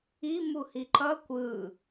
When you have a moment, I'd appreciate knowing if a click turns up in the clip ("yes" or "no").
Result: yes